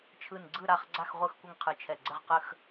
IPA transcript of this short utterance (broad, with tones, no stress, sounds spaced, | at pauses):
t͡ʃʰ ɯ˧˩ n ɡ͡ǀ ɯ˥˨ ɾ a˥˨ χ ɡ͡ǀ a˥˨ x ʁʷ ɯ˥˨ x kʷ ə˥˨ ŋ qʰ ɯ˧˩ t͡ʃʰ ɛ˧˩ ɡ͡ǀ ə˥˨ ʁ q ə˥˨ x